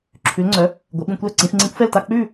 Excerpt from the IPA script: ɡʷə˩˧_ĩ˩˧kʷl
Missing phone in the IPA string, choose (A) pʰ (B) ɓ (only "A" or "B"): B